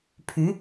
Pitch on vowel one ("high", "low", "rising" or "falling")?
rising